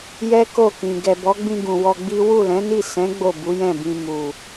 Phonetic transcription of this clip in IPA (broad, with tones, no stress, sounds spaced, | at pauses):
j ɛ˦ k o˦˨ k ĩ˨ ɡ ɛ˨ b ɔ˨˦ ɡ͡b ĩ˧ ɡ ũ˨ w ɔ˧ ɡ͡b i˦ w u˦˨ l ɛ̃˨˦ n i˦˨ s ɛ̃˨˦ ɡ͡b o˦˨ b u˨˦ j ɛ̃˦˨ b ĩ˧ m u˨